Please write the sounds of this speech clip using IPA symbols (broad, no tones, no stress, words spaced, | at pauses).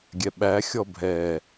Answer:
ɡʲɛɓæxʲɔ bʱɛ